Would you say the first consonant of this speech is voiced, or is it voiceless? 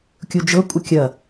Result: voiceless